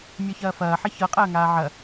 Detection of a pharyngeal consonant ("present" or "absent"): present